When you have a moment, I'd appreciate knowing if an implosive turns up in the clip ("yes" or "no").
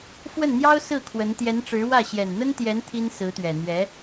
no